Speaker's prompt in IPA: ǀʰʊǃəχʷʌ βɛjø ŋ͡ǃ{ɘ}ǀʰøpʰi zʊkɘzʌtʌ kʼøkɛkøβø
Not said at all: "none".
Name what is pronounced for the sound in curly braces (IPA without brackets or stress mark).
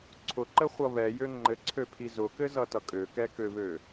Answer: ɘ